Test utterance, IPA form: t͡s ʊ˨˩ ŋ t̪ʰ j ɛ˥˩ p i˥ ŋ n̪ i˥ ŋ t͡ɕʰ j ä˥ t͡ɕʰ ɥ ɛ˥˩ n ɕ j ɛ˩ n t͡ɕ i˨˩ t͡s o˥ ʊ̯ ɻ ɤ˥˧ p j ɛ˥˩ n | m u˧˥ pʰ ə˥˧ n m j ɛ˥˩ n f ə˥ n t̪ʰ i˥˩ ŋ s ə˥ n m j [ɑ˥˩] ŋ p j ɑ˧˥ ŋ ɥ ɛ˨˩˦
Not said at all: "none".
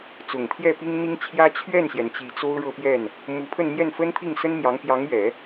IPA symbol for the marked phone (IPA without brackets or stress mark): ɑ˧˥